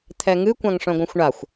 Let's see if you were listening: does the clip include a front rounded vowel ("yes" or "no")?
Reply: yes